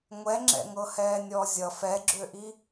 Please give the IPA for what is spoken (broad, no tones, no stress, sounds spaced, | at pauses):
ŋʷ ɛ ŋ͡ǁ ɛ̰ ŋ ɤ h ɛː nʲ ɔː zʲ ʌ f ɛ ɡ͡ǁ ø ʔ i